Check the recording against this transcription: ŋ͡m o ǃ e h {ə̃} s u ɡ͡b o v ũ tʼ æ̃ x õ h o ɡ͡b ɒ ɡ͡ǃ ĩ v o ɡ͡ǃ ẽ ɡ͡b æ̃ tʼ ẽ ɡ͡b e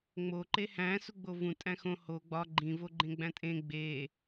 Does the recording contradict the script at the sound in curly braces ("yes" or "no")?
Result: yes